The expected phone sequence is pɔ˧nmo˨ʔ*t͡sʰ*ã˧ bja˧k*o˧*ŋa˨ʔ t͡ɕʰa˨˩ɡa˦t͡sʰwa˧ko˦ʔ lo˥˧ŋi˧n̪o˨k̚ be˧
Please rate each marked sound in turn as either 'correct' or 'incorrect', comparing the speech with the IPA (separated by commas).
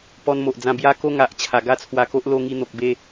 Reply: incorrect, correct